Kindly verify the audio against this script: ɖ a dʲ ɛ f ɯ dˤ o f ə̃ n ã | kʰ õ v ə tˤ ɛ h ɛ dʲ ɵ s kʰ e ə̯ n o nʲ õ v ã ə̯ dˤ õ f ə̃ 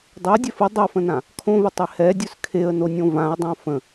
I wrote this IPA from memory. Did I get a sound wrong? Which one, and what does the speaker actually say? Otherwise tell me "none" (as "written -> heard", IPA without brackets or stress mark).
ɖ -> dˤ